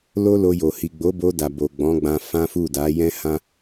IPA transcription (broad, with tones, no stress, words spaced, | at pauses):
lo˦lo˧jo˨ hi˨ɡ͡bo˨˦bo˧ da˨bo˨ ɡ͡bɔ̃˨˦ɡ͡bã˧ fã˦fu˦˨ da˨˦jɛ̃˦hã˦